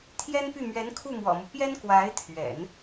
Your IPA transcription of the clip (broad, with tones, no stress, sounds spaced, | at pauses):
t̪ʰ j ɛ˥ n p y˥˩ m ɥ ɛ˧˥ n kʰ u˥˩ m w ɔ̰˨˩ m u˦ p j ɛ˥ n k w a˧˥ ɪ̯ t̪ʰ ɥ ɛ̰˨˩˦ n